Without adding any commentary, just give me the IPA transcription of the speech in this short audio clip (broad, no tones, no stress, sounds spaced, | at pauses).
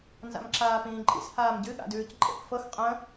n z a̰ m ǁ aː p ĩː ǃʼ ḭ s h aː m ɟ ɨ ɠ a̰ d ʉː c ǃʼ ḛ p f ɤ x qʼ ə̃